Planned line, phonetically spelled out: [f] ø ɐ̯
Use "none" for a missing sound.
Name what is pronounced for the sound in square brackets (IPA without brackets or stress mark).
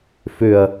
f